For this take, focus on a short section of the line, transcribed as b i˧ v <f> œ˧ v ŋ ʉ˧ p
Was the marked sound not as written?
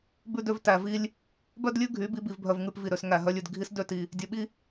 yes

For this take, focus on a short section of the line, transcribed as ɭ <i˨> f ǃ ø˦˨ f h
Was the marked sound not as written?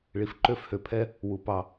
no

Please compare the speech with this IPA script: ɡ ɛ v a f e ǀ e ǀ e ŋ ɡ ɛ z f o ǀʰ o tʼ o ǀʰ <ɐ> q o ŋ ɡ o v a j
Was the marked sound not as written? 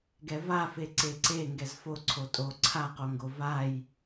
yes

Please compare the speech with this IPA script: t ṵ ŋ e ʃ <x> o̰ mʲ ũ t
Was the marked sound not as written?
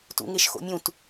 no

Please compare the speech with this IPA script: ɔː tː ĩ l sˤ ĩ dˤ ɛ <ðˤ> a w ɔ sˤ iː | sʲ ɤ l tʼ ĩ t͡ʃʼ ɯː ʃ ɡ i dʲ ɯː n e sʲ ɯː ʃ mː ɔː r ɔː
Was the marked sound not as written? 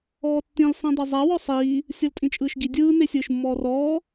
yes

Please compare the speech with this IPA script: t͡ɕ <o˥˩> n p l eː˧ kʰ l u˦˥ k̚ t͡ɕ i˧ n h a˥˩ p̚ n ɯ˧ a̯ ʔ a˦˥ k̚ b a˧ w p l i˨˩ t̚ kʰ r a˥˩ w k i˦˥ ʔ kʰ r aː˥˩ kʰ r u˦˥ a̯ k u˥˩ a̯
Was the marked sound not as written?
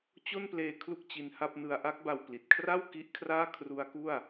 no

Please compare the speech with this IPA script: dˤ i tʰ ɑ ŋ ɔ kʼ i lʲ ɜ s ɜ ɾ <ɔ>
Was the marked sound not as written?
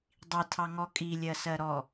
no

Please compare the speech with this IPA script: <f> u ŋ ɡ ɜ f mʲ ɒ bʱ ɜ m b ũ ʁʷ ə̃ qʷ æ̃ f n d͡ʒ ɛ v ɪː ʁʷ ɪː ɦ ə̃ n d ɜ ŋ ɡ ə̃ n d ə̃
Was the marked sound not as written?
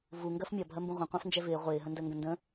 yes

